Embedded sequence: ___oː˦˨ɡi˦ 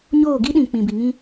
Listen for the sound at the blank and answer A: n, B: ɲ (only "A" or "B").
B